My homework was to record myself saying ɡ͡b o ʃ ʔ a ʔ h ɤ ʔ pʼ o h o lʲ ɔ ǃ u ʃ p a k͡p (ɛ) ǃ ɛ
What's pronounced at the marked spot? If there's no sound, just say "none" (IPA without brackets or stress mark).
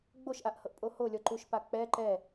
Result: ɛ